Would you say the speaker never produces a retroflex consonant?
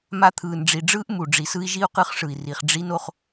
no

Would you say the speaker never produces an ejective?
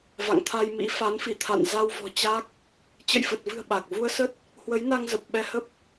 yes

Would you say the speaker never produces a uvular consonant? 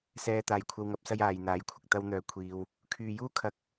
yes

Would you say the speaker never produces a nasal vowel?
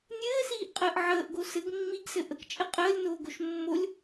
yes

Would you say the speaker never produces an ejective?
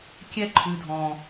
yes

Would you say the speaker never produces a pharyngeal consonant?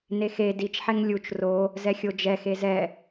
no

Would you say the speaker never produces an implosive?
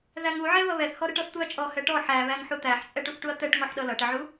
no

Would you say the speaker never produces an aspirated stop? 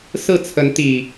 no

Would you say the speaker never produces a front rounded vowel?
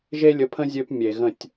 no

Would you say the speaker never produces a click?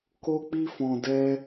yes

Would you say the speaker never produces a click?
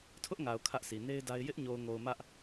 yes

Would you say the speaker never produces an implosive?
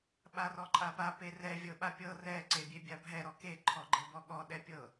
no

